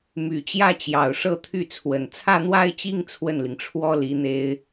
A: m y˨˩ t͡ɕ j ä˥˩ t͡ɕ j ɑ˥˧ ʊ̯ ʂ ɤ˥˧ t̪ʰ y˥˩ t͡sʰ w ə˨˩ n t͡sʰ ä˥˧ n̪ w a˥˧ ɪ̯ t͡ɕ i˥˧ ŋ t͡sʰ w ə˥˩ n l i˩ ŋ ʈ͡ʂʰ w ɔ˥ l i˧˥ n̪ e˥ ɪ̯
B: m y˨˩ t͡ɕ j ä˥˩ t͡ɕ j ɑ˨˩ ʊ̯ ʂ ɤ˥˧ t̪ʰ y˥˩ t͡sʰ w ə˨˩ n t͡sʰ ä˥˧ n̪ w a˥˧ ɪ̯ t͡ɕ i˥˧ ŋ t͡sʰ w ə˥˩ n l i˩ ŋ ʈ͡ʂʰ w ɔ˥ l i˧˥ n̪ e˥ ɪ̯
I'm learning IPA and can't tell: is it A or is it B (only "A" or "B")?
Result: B